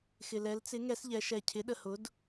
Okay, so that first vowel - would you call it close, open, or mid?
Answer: close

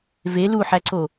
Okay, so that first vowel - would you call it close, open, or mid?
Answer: mid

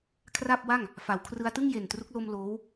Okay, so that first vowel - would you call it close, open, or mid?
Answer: open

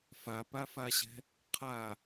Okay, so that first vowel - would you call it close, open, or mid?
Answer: open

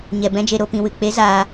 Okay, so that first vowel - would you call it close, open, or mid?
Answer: mid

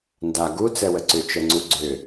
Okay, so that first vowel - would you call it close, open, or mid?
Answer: open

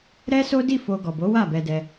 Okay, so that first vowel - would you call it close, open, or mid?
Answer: mid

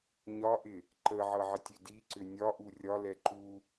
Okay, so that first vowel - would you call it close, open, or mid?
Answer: open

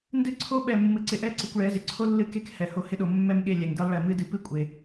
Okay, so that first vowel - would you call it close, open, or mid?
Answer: close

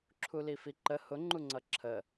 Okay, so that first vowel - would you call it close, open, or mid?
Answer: close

